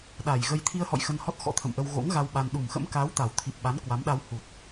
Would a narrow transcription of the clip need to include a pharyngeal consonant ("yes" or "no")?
no